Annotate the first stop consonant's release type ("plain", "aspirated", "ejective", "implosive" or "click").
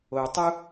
plain